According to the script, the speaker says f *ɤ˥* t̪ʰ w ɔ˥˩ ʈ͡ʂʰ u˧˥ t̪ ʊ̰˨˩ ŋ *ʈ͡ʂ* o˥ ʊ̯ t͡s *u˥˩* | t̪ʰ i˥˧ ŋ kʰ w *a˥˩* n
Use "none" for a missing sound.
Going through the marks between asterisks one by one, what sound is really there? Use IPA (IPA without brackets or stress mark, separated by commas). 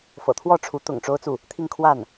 ɤ̰˨˩, ʈ͡ʂ, u˥˩, a˥˩